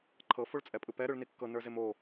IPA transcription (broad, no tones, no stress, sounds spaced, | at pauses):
ǃʰ ɤ f o ɭ t͡sʼ ɛ pʼ ɯ p ɛ ɾ ɯ ɭ n i kː ɤ n ə˞ z e m o